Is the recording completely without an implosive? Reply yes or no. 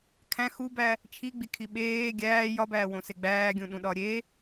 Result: no